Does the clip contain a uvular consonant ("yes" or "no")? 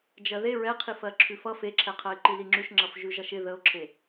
yes